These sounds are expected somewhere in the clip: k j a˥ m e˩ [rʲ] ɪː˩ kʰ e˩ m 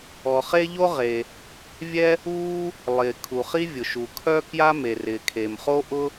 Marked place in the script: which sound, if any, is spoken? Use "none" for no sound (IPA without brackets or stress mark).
r